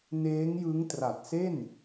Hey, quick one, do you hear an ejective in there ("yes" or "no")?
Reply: no